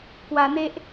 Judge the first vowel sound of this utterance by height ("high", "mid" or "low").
low